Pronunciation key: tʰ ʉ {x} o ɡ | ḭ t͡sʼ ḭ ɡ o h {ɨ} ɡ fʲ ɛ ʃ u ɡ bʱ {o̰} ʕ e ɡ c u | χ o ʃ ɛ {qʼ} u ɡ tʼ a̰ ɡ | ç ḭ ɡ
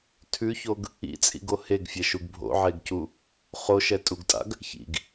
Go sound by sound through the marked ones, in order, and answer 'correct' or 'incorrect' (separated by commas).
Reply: incorrect, incorrect, correct, incorrect